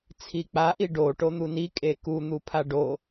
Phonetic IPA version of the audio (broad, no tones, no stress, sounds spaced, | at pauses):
t͡sʰ i k͡p a ʔ i ɖ o ʈ o n̪ u n i kʼ e k u n̪ u pʰ a ɖ o